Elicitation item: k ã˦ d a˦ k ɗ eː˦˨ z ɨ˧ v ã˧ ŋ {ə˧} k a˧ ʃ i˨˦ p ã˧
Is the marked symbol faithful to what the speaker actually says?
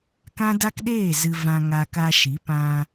no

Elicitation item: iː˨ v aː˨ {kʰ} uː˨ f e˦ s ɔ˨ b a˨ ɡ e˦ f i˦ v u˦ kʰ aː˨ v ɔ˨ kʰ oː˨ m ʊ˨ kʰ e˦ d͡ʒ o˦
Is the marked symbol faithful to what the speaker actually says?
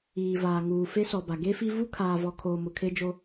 no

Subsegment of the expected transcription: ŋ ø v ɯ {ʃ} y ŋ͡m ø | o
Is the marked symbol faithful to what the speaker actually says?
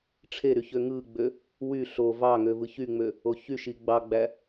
no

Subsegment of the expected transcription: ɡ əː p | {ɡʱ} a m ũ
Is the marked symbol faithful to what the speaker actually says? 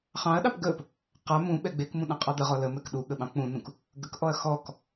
no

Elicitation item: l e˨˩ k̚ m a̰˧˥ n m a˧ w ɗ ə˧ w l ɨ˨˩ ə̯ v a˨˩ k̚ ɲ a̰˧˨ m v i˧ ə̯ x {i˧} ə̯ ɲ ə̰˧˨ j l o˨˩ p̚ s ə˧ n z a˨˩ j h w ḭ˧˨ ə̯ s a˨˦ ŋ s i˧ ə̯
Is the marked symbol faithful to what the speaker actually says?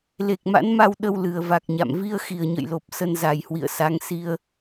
no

